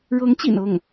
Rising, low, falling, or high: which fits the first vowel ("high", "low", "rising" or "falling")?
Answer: rising